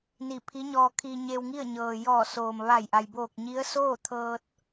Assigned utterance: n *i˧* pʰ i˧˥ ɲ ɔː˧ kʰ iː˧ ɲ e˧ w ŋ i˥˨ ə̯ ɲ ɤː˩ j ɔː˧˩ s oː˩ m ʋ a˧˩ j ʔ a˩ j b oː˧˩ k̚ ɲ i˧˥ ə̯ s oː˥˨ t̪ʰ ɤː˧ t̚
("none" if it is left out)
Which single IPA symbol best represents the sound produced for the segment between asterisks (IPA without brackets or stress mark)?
i˧˩